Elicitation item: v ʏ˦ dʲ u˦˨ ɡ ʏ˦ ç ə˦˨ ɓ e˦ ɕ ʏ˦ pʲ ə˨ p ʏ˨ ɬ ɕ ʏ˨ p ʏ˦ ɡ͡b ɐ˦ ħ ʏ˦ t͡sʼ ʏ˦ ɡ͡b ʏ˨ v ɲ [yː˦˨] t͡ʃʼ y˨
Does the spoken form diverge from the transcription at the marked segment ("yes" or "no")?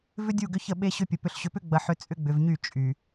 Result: yes